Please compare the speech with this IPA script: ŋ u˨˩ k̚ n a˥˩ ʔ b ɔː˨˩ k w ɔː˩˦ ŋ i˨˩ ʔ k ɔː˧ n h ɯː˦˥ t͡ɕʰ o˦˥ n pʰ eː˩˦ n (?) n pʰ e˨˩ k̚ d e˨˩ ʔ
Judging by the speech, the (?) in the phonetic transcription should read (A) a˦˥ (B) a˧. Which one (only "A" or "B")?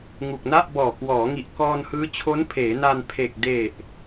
B